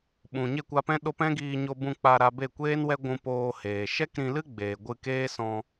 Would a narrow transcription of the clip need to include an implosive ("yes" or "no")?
yes